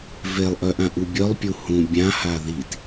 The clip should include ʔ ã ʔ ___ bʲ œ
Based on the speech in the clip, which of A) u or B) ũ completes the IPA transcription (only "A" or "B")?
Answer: A